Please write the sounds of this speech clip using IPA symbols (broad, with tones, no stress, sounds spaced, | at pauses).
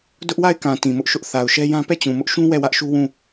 d ʊ˦ ʔ w a˦˨ ɪ̯ k ã˨ t ĩ˨ m ʊ˦ ʔ ʃ ʊ˦ ʔ θ a˨ ʊ̯ ʃ ɛ˦ j ã˦ p ɛ˦˨ t͡ɕ ũ˨ m ʊ˦ ʔ ʃ ũ˦ w ɛ˦˨ w ä˦ ʔ ʃ u˦ w ũ˦˨